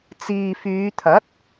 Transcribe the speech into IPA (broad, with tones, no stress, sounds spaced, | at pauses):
t͡s iː˨ f yː˨˧ t̪ʰ ɐ˨˥ t̚